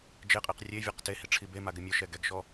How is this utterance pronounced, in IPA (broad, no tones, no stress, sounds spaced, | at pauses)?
d͡ʒ e qʼ i q rʲ e vʲ ɛ q t e h i ʈ͡ʂʰ i b e m a ɡ ɪ mʲ ʊ ʃ ɛ ɡ ɛ ɡ ʃ ɔ